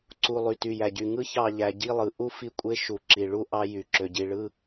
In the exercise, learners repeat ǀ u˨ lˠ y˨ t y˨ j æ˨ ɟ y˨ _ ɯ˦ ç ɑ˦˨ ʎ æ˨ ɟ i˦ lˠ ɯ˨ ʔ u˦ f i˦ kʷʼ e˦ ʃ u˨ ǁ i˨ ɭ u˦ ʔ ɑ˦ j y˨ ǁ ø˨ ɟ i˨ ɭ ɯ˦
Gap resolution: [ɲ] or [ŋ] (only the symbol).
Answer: ŋ